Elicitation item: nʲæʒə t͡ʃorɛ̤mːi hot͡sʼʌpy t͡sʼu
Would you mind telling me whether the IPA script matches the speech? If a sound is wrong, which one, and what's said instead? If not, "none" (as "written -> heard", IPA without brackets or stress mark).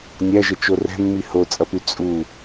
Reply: none